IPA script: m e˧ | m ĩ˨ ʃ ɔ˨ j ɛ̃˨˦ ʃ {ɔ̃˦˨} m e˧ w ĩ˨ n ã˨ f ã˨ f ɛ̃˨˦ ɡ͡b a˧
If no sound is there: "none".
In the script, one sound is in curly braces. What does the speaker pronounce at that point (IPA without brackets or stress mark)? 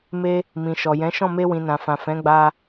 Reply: ɔ̃˦˨